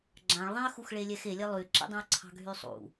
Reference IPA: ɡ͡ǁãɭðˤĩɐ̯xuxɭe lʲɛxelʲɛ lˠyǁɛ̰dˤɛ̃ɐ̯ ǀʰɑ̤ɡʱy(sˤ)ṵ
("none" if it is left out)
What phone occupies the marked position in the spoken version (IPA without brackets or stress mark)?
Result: sˤ